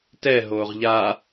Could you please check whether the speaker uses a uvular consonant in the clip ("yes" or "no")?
yes